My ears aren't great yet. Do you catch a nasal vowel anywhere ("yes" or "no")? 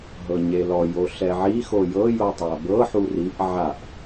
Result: no